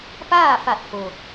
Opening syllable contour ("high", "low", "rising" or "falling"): falling